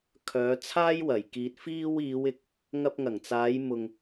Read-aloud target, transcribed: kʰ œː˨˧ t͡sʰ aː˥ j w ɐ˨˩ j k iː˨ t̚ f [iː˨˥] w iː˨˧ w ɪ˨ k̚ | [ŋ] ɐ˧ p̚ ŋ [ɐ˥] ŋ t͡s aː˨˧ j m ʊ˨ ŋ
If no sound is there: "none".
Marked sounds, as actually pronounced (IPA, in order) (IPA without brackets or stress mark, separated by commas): iː˧, ŋ, ɐ˨˩